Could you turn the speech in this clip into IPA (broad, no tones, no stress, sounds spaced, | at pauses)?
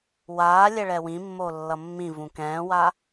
w aː lʲ ɛ ɭ ɛ w ĩ mː o lː ʌ mː ĩ v ũ k ɛ̃ː w a